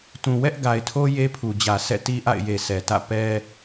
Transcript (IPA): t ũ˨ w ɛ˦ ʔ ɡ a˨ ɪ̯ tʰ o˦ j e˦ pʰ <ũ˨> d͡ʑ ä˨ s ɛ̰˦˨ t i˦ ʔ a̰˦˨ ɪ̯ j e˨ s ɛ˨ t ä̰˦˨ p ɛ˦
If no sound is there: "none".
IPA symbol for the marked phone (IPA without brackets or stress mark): u˨